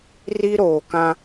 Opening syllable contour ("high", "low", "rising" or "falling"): high